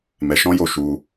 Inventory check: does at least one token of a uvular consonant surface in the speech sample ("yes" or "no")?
no